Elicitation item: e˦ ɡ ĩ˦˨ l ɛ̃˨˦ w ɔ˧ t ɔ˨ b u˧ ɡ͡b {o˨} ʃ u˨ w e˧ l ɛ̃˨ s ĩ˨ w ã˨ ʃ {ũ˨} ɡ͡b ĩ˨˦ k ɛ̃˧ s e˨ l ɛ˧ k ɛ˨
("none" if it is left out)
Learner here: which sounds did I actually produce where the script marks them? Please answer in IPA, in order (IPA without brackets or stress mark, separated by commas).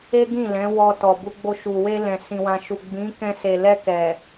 o˧, u˨